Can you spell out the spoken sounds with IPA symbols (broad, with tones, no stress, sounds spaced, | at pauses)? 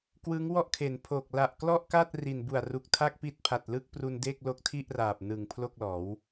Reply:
k w ɯ˦˥ ŋ w ɔ˥˩ ʔ kʰ e˩˦ n pʰ o˨˩ k̚ l a˨˩ ʔ k l ɔ˥˩ ʔ k a˥˩ t̚ r i˨˩ n b u˨˩ a̯ r u˨˩ k̚ tʰ a˥˩ k̚ p i˦˥ t̚ pʰ a˨˩ t̚ l ɯ˥˩ k̚ p r u˧ n d e˥˩ k̚ l o˦˥ k̚ tʰ i˥˩ ʔ r aː˨˩ p̚ n ɯ˨˩ ŋ pʰ l o˥˩ k̚ l ɔː˩˦ w